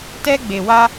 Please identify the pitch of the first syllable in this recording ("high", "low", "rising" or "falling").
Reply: high